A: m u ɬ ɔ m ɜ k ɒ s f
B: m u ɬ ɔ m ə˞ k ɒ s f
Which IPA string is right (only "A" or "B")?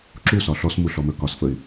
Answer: B